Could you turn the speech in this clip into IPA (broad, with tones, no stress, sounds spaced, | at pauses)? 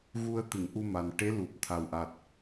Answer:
ɣ u˧ ə̯ t̪ ɨ˨˩˨ ŋ ʔ u˧ m a˨˩ n ʈ e˧˥ l u˨˩ p̚ t̪ʰ a˨˩ w ʔ a˨˩ t̚